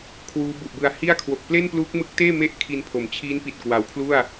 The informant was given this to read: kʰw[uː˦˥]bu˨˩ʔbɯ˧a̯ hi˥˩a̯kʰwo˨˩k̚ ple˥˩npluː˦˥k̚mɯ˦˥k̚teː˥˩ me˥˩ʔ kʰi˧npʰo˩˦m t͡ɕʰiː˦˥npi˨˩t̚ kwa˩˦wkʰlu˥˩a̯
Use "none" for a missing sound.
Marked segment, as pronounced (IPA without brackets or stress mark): uː˦˥